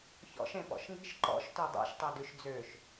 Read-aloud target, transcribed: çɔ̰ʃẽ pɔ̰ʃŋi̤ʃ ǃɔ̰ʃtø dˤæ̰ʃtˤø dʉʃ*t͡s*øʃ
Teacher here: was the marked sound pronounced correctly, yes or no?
no